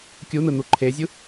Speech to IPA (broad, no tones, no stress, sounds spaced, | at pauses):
kʲ u n̪ ɯ n̪ u ǃʰ e zʲ u